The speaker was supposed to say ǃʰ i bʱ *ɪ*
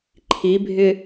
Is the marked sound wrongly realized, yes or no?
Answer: no